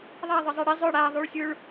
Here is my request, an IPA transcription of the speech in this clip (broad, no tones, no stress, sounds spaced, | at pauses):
ðˤ a ðˤ ɪ zˤ ɛ ɽ i zˤ ʊ ɽ a ðˤ u ɭ sʲ u ɭ